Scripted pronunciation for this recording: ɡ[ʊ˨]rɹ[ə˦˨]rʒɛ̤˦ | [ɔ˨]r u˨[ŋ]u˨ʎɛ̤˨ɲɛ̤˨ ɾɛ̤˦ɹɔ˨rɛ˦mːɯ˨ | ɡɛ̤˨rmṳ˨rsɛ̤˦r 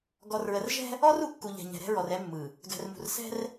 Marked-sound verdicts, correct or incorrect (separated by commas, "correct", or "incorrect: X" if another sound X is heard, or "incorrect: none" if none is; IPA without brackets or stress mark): incorrect: ɔ˨, incorrect: ə˨, incorrect: ɔ˦, incorrect: kː